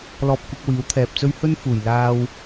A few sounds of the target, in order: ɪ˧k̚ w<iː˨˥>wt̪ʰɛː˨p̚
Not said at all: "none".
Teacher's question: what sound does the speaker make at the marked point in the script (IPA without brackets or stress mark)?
iː˨˥